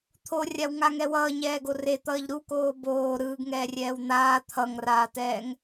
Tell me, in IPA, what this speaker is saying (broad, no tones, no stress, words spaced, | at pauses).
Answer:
t̪ʰorʲawŋaŋɛ wʌːɲɛːɡo ret̪ʌːʎ ɾukoː boː ɾɯːɡŋɛːrʲɛːw n̪aː t̪ʰʌŋraːtɛːŋ